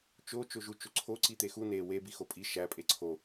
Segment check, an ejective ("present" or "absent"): present